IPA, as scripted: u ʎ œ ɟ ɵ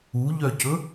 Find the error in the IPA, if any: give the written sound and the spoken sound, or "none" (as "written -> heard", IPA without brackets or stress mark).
ɟ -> c